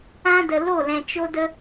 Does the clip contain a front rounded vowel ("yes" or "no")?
no